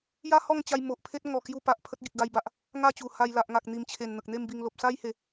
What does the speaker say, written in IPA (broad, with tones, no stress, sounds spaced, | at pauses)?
j a˦ h ɔ˥˧ ŋ t͡ɕ a˧ j m o˨ ʔ pʰ e˦ t̚ ŋ ɔ˨˩ k j u˧ p a˨ ʔ pʰ ə˦ t̚ ɡ i˨ k̚ ɡ a˧ j b a˨ ʔ | ŋ a˥˧ t͡ɕ u˨˩ h a˧ j l a˨ ʔ ŋ a˨ k̚ n̪ i˨˩ m t͡ɕʰ e˨˩ n n̪ ə˨ k̚ n̪ e˥˧ m b i˧ ŋ l o˨ p̚ s a˦ j h e˨˦